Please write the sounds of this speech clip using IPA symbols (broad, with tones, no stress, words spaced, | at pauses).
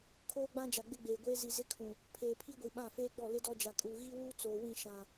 kʰoː˦ɡ͡bã˦d͡ʒa˨ ɡ͡bɪ˦ɡ͡beː˨ɡʷeː˦ zi˨ zɪ˦kʰũ˨ | pʰeː˨pʰi˦ɡʷi˨ ɓã˦˨feː˦ɡ͡bɔ˦˨ lɪ˦dɔ˦d͡ʒa˨kʼuː˨ ɣi˦wuː˦ t͡soː˨wĩ˦˨ ʃã˨